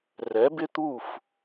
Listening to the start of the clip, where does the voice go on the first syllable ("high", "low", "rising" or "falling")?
rising